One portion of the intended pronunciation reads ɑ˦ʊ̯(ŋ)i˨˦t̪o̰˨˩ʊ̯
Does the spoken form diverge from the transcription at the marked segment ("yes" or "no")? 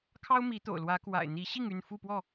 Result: yes